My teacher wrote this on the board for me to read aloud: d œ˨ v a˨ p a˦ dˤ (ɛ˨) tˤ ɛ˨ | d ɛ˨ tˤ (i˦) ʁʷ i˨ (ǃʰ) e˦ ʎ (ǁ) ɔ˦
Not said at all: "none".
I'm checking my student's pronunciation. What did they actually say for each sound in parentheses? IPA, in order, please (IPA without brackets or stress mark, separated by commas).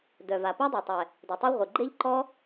ɛ˨, i˦, ɡ͡ǃ, ǃ